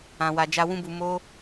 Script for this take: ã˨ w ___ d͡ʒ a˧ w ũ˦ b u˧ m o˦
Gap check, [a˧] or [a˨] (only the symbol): a˨